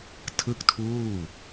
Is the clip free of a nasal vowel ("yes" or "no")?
yes